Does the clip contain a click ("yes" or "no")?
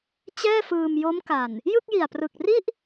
no